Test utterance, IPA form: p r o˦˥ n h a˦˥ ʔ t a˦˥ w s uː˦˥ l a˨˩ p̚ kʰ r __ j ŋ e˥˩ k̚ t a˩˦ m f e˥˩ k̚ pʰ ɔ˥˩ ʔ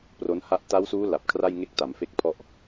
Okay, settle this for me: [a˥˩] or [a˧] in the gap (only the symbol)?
a˥˩